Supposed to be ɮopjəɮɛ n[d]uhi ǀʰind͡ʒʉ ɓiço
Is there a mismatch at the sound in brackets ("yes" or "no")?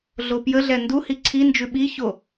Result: no